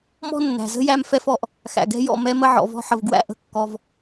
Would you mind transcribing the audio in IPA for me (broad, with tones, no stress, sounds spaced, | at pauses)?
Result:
m ɔ̤˦ nː æ̤˨ z ə̤˦ j æ˧ m f ɛ˧ f ɔ˨ ʔ | x æ̰˨ ɡ ɛ̤˦ j ɔ̰˦˨ m ɛ˧ m ə˧ ʕ ɔ̰˨ v ɔ̤˧ ħ ə˨ v ɡ w æ̰˦ ʔ ə̤˧ kː ɔ˧ v